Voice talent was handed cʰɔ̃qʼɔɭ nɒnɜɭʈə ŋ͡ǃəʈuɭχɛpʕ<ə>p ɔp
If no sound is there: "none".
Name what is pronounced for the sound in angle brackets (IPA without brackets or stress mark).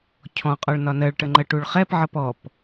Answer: ʌ